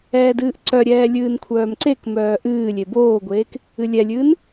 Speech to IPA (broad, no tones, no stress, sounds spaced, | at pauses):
ɛː d ɨː ʔ ǀ œ ɾʲ ɛː lʲ ɨː n kʷʰ œː m ǀ e k m œː ʔ ɨː lʲ e b oː ɡʷ eː k | ɨ lʲ ɛ lʲ ɨː n